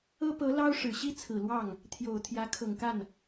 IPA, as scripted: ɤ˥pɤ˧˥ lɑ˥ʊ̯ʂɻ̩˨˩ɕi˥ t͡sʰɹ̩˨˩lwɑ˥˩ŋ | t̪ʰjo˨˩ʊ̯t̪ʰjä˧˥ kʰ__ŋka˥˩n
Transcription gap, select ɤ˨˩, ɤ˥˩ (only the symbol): ɤ˨˩